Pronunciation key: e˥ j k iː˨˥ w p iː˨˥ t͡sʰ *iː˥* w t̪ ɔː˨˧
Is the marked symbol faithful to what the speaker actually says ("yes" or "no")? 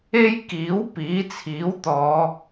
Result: no